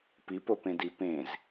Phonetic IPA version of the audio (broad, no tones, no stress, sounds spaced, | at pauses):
p i p o p ẽ d i p ẽ z